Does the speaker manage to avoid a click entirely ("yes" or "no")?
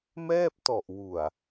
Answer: yes